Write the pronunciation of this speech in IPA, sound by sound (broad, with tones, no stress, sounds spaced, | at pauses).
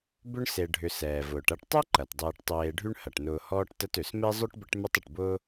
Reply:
b ʏ˦ ɳ s e˨ ɖʱ ʏ˨ s ɛː˩ v ʊː˩ ʈ ɐ˦ ʈ tˤ ɛ˥ ǃ ɐ˩ t dˤ eː˨ ʈ tˤ eː˨ ɖʱ y˦ ɳ h ɐ˩ ʈ n ʊː˨ h ɔː˦ ʈ t ə˦ t ø˩ s m e˥ zˤ ø˥ ʈ b ə˦ ʈ m ʏ˦ tˤ ə˩ ʈ b ʊː˥